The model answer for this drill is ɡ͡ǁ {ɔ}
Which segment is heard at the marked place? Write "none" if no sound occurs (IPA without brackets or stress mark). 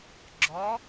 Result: ɔ